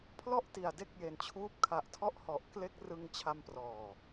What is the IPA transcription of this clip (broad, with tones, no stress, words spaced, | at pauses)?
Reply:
pʰlɔ˥˩ʔti˨˩a̯ de˦˥k̚je˨˩nt͡ɕʰuː˦˥p̚ kʰa˨˩ʔtʰɔ˦˥ʔhɔ˨˩ʔkle˦˥k̚ rɯ˧ŋt͡ɕʰa˧mprɔː˨˩